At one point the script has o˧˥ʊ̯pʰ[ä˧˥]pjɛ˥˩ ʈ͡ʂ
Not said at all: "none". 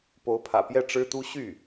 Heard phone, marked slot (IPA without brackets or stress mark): ä̰˨˩